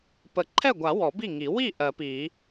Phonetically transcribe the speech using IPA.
p ə˨˩˦ ǃʰ ɛ˥˩ ɡʷ a˨˩˦ w ɔ˨˩˦ b i˥˩ ŋ i˨˩˦ w i˥˩ ʔ ɜ˨˩˦ p i˨˩˦

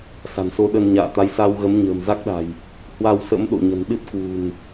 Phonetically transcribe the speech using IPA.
s a̤˨˩ n s o˧ ɗ ə˧ n ɲ a̰ː˧˨ t̪ a˨˦ j s a˧ w ɣ ə˨˦ m ɲ ə̤ː˨˩ m z a˦˥ k̚ ɗ a̤˨˩ j | h w a˧ w s ə̰˧˥ m ɗ o̰˧˨ ɲ ə̤˨˩ n ɗ ɨ˦˥ t̚ k w ṳ˨˩ n

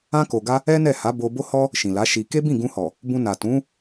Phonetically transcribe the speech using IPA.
ã˧ k o˨ ɡ a˧ | ɛ˦ n ɛ˦˨ h a˨˦ b o˧ b o˦ h ɔ˦ | ʃ ĩ˨ l a˨˦ ʃ i˧ k e˦ b ĩ˦˨ ɡ ũ˧ h ɔ˨ | b ũ˧ n a˨ t ũ˨˦

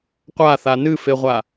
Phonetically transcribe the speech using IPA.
qʷ a θ a n ɨ f e ʁʷ a

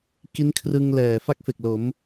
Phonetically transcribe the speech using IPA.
k i˦˥ n kʰ r ɯ˧ ŋ l ɛː˨˩ f a˦˥ k̚ f e˨˩ k̚ l o˩˦ m

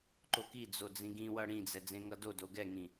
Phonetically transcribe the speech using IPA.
ǃ o k i d͡z o d͡z ĩ ɡ ĩ w ʌ ɽ ĩ d͡z ɛ d͡z ẽ ŋ ʌ d o d o ɡ ɛ ŋ ĩ

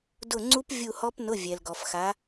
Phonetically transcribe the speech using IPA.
d ʊ˦˨ ŋ͡ǀ u˦˥ p vʲ u˦˨ h ɔ˦˥ p n ʊ˧˥˧ vʲ ɛ˨ l ɡ ɔ˨ f x a˨˦

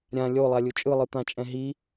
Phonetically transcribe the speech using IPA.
ɾʲ ã lʲ o lˠ a lʲ u t͡ʃʼ ɯ lˠ ɯ t̪ ã t͡ʃʼ ɛ̃ ɦ i

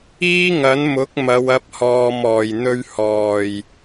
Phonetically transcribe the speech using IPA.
iː˥ ŋ ɐ˨˥ n m ʊ˨˥ k̚ m ɐ˨˧ w ɐ˨˥ p̚ h ɔː˧ m ɔː˨ j n̪ ɵ˥ ɥ h ɔː˨˩ j

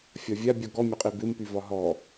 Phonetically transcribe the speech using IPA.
fʲ ɒ vʲ a bʲ ɔ ɡ ɔ mʲ ɒ qʼ i b ɪ m p y v ɒ ɦ ɔ

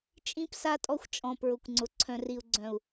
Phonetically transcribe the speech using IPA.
t͡ʃʼ ĩ˦ p s a˦ tʼ ɔ˦ xʷ t͡ʃʼ ɔ̃˨ p ɹ ʊ˨ kʷ ŋ͡ǀ ʊ˨ ǀʰ œ̃˨ r i˨ u̯ ɡ͡ǀ œ̃˨ u̯

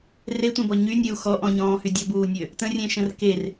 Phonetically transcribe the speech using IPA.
r e tʷ ẽ b ɔ ɲ y nʲ e u̯ x ɔ ʔ ɔ̃ ɲ ɔ̃ː h y dʲ ɔ b uː nʲ ø | t ə̃ rʲ ẽ ʃ ə̃ r k e r

